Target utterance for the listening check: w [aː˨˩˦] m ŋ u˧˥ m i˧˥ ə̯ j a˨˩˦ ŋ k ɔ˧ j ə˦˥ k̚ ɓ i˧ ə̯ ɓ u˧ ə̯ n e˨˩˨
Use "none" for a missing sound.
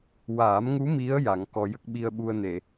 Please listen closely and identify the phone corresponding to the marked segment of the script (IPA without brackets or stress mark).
aː˨˩˦